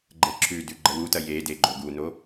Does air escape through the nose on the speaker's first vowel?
no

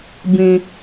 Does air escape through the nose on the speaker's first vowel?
yes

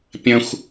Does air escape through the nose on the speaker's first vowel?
yes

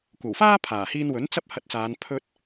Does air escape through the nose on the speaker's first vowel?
no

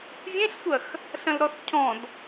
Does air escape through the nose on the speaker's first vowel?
yes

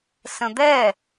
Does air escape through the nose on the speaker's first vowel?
yes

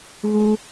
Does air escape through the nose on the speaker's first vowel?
no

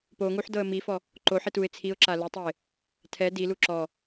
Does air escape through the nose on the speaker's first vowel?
no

